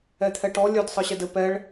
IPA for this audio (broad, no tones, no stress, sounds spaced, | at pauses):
ɛ t̪ʰ ɛ ʈ ɔ lʲ œ d sˤ ɯ ɕ ɛ d ɘ p ɛ ɭ